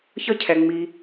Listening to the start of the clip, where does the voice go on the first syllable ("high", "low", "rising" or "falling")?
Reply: high